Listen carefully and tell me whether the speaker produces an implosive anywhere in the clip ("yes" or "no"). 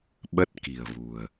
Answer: yes